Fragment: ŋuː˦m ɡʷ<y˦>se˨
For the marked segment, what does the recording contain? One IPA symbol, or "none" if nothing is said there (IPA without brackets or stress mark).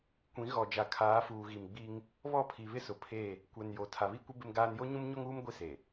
i˦